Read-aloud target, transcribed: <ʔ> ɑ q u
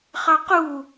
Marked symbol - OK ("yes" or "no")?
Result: no